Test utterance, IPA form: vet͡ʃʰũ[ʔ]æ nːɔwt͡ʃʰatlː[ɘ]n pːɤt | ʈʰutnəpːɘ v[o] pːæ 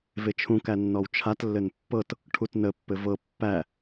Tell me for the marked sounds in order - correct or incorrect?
incorrect: k, correct, incorrect: ɤ

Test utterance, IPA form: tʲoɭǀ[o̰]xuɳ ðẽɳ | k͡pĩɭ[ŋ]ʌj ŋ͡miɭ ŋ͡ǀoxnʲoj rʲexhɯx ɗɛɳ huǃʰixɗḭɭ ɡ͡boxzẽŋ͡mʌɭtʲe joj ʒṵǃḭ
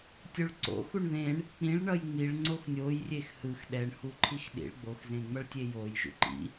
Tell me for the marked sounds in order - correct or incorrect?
correct, incorrect: ɳ

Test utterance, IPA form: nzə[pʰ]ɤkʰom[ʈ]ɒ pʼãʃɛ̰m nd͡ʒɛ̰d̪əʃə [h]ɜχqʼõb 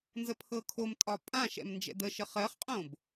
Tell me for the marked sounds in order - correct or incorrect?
correct, incorrect: tʼ, incorrect: χ

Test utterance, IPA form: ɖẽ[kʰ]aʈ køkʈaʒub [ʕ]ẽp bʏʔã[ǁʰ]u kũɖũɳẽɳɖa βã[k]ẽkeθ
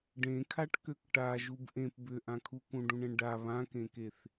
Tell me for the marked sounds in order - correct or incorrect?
correct, incorrect: ʔ, incorrect: kʰ, correct

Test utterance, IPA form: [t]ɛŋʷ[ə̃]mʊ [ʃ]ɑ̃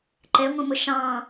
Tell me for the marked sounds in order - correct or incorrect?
incorrect: ǃ, correct, correct

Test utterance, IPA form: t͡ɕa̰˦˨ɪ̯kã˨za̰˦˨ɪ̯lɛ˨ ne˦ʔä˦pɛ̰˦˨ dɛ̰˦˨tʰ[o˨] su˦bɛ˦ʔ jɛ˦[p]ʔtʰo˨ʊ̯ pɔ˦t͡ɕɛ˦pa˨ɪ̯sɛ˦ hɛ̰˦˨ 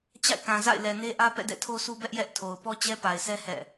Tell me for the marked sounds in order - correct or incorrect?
incorrect: o˦, incorrect: none

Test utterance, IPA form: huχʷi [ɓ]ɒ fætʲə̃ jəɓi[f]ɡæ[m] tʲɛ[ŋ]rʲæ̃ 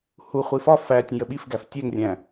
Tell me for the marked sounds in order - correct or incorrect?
incorrect: f, correct, incorrect: f, correct

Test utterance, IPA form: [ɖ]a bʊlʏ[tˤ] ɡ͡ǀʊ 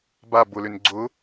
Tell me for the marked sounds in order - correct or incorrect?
incorrect: b, incorrect: n

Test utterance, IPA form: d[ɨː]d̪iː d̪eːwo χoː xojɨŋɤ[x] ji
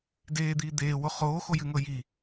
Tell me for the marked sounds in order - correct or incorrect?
incorrect: eː, incorrect: none

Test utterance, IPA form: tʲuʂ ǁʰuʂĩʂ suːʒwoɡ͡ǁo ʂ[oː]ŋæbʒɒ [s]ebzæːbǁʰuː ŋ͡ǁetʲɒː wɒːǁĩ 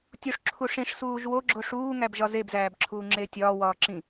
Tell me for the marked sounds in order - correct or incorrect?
incorrect: uː, incorrect: z

